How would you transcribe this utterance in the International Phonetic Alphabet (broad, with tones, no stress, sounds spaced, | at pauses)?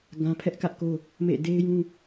ɡ ã˦ pʰ ɛ˦ ʔ k ä˦ ʔ k o˦ | m ḛ˦˨ d e˦ ɪ̯ j ũ˦